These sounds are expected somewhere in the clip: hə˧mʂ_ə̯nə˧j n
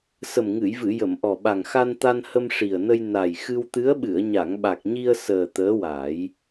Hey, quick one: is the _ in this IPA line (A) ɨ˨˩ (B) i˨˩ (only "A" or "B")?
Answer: B